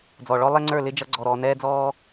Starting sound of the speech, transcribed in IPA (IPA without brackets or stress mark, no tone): d͡z